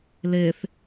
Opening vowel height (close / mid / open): mid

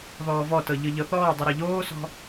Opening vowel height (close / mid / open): mid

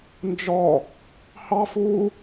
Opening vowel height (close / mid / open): mid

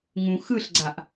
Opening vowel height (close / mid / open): close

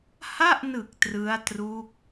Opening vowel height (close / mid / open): open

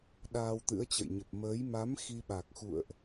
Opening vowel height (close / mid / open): open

